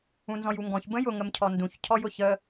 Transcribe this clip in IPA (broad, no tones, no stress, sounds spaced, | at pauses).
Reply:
ũ n z ɔ̃ j u ŋ ɡ ɔ̃ ç b ə̃ j ʊ ŋ ə m cʰ ɔ n d ũ ç cʰ ɔ j ʊ ç ə